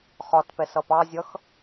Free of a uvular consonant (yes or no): no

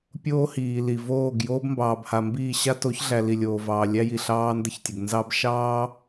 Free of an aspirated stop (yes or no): yes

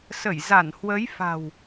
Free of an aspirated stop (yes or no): yes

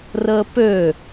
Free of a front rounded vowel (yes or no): no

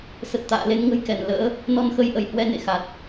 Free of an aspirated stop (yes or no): yes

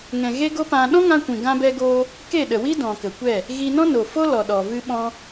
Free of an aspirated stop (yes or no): yes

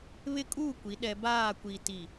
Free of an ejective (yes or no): no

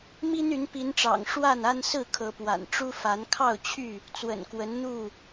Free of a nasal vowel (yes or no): yes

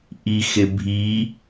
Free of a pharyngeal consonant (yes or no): yes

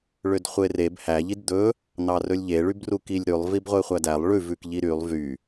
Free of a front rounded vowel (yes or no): no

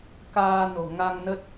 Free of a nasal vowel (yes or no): yes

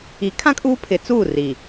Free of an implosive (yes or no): yes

